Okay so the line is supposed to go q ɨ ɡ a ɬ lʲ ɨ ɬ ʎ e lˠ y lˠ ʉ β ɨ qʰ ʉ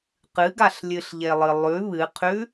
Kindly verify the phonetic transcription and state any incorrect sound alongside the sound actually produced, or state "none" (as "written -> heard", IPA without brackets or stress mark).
y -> ɨ